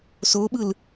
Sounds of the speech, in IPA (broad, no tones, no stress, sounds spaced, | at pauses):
s o ɓ ɯ l